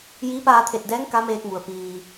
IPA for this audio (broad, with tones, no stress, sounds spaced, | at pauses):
j iː˧˥ p aː˧ t̪ʰ e˧˩ t̚ d ɛː˧˥ ŋ k a˧˥ m eː˧ k̚ m u˩ ə̯ p iː˩